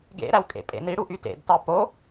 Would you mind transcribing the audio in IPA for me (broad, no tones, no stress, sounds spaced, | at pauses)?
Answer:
ɡ ḛ ɾ æ w kʼ ḛ pʼ ḛ n i ɽ u ʔ y t ḛ d t ɑ p o